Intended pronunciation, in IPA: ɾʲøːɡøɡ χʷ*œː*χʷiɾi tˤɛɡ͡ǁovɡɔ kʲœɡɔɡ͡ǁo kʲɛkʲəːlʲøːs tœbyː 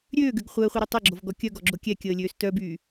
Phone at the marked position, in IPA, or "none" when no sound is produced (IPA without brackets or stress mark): əː